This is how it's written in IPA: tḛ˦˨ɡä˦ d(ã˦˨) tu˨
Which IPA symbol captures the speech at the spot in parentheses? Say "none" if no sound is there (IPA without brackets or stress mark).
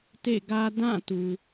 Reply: ã˦˨